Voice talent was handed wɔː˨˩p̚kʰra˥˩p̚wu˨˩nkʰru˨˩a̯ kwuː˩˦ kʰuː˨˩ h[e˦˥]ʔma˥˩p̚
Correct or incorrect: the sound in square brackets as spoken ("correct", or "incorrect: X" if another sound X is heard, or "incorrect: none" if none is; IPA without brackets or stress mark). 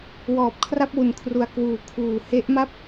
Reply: correct